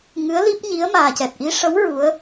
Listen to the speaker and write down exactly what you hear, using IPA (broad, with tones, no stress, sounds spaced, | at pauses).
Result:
ŋ ɨ˧˥ ə̯ l i˦˥ p̚ ɲ i˧˥ ə̯ m aː˨˩ c ɛ˨˩ t̚ ʔ i˧˥ ʂ ə˧˥ w ɹ u˧˥ ə̯